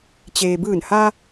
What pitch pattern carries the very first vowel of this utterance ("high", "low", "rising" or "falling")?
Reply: low